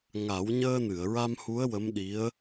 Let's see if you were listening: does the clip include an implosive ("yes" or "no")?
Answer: yes